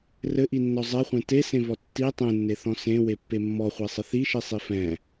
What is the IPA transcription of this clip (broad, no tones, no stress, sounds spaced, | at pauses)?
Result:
r ɘ ʔ i nː ɔ zˤ ɛ χʷ ẽ t e s ẽ v ɔ tː i tˤ ẽ nː e θ ɔ̃ s ẽ w e pː e mː ɔ χʷ e sˤ ɘ θ i ʃ i sˤ i f ɛ̃